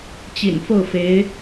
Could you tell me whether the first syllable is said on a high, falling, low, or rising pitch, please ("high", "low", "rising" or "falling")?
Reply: low